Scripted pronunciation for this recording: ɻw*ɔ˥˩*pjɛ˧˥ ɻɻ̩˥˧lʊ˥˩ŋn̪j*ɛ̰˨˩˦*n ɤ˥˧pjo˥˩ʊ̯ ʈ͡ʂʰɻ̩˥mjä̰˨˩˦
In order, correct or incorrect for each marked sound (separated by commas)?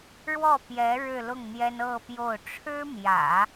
correct, incorrect